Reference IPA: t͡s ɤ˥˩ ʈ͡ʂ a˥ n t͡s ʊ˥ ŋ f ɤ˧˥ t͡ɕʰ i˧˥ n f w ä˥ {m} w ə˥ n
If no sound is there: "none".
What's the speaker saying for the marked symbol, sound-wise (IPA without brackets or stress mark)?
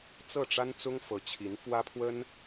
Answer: pʰ